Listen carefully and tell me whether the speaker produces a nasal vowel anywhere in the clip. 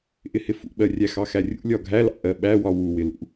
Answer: no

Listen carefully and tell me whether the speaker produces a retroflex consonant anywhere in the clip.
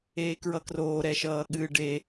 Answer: yes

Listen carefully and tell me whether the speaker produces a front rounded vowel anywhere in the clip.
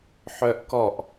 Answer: yes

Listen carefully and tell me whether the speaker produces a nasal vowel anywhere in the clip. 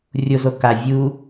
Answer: no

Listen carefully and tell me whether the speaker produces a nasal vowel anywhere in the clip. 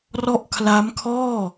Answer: no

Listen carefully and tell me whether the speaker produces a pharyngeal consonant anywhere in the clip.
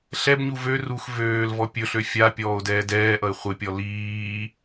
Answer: no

